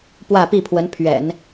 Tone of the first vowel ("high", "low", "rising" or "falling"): falling